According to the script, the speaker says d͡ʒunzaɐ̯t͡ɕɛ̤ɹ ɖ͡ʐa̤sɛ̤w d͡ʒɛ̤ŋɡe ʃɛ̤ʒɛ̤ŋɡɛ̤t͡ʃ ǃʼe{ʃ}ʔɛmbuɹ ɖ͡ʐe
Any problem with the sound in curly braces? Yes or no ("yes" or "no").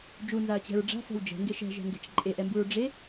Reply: yes